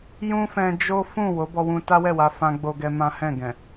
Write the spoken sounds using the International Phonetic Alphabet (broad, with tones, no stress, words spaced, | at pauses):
jũ˦fɛ̃˧ d͡ʒo˦ fũ˦˨ wo˨˦bɔ˧wũ˧ ta˦wɛ˦˨wa˧ fã˦ɡ͡bo˦ɡɛ˦mã˦ hɛ̃˦˨ɡɛ̃˨